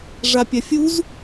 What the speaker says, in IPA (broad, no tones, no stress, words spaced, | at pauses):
ʐapʲafʲuz